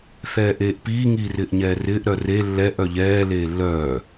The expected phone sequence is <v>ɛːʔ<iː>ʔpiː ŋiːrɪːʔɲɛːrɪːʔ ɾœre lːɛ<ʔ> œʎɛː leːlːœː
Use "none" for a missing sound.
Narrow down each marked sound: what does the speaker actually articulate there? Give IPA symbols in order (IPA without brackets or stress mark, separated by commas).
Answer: θ, eː, ʔ